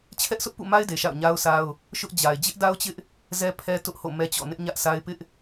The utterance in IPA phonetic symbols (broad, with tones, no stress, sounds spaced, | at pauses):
t͡ɕʰ ɛ˦ ʔ sʰ ʊ˦ ʔ p ṵ˦˨ m a˦ ɪ̯ d e˨ ʃ a̰˦˨ ʊ̯ ɲ a˦ ʊ̯ s a˦ ʊ̯ | ʃ ʊ˦ ʔ d͡ʑ a˨ ɪ̯ d͡ʑ ɪ˦ ʔ d a˦ ʊ̯ t͡ɕ ɪ˦ ʔ | z ɛ˦ pʰ ɛ˦ t ʊ˦ ʔ h o̰˦˨ m ɛ˦ t͡ɕ ɔ̰˦˨ n ɪ˦ ʔ ɲ ä˦ ʔ s a˦ ɪ̯ p ɪ˦ ʔ